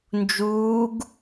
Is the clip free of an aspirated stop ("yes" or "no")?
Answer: yes